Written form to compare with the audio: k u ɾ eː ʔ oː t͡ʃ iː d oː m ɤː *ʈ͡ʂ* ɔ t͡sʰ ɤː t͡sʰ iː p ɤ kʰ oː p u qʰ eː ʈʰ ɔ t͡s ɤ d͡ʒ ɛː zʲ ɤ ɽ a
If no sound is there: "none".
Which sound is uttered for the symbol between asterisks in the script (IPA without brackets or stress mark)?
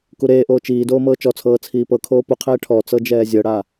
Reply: t͡ʃ